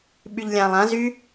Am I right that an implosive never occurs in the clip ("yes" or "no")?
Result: no